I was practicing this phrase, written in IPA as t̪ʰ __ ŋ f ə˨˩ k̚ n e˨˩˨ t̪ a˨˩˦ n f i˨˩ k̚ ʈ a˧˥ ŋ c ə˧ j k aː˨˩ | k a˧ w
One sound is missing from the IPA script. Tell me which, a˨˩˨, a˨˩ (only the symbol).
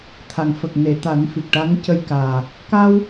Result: a˨˩